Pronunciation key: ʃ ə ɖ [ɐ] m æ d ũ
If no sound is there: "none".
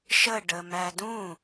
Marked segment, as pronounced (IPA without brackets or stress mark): ə